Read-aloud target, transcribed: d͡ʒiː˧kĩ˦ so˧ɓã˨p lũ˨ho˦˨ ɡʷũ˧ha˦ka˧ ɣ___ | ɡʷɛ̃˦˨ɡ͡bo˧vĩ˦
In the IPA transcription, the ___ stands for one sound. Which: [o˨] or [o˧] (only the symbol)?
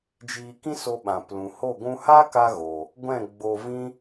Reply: o˨